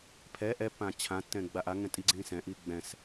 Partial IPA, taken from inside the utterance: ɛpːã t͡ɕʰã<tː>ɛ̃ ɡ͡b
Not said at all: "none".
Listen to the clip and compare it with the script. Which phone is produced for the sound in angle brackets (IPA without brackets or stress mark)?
tː